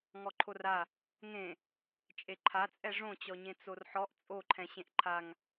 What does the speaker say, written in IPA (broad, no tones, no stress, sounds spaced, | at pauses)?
ŋ ɔ ǃʰ o r a | ŋ ẽ | t͡ʃʼ e ǃʰ a t͡sʼ ɛ ʐ õ t͡ɕ ɔ ɲ ẽ t͡s o r ħ ɔ ʔ t͡sʼ o ǃʰ ɛ̃ ɕ ẽ ʔ ǃʰ a ŋ